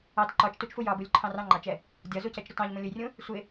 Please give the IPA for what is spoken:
ɑ t ǃ ɒ t͡ʃ t u t͡ʃ f u j ɒ b u lʲ ǃʰ ɑ̃ r ɑ̃ ŋ͡ǃ ɑ t͡ʃ ɛ | dʲ ɒ z u c ɛ t͡ʃ ɾ ʊ t ɑ̃ ʎ m ũ lʲ ʊ j rʲ ũ | sʷ ɪ

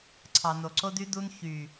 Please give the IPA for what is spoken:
ǀʰ ɑ˨ n o˨ ǀ o˧ d y˧ d u˧ n ç y˨

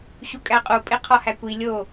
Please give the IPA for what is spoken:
ɕ u kʼ æ qʼ u pʼ e qʰ ɒ h æ kʷ i lʲ o

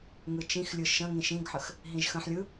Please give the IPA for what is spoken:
ŋ ɯ t͡ʃ ĩ x lʲ ɯ ʃ ə̃ ŋ ĩ ʃ ĩ ɡ ħ ə x | ɦ ĩ ʒ x ə̃ ħ lʲ ɯ

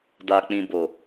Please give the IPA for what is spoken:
d a˨ k͡p ĩ˨ b o˨

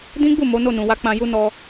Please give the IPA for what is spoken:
d ĩ˦ ɡ͡b u˦˨ m o˨˦ n o˦˨ n ũ˨ w a˧ k͡p ã˧ j u˧ n ɔ˧

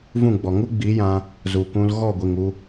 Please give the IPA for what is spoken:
v ũ˦˨ ɡ͡b ɔ˨ ŋ u˦ ɡ͡b i˨˦ j ã˧ | z u˨ k ũ˧ l ɣ ɔ˦˨ ɡʷ i˨ ŋ u˧

